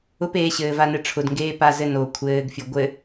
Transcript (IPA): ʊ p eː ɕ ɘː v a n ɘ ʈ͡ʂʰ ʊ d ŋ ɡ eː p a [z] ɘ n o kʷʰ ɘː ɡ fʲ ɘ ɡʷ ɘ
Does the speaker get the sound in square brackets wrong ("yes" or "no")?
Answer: no